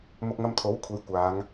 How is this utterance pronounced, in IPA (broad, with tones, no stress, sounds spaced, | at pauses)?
m ʊ˧ k̚ ŋ ɐ˧ m t̪ʰ o˨˥ w kʷʰ e˨˧ j kʷ aː˨˧ ŋ